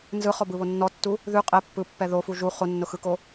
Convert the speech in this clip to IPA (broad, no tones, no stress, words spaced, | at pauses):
nzɯχɔbɯβo nːɔtːu | ðʉ qʼɛ pːɯpːɛ ðofu ʒu χonːʊxɯko